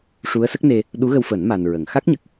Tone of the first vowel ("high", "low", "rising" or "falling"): rising